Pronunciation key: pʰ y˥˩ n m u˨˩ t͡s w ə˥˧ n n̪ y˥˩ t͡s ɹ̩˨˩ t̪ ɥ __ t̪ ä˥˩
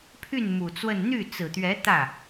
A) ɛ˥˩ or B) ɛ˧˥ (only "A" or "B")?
B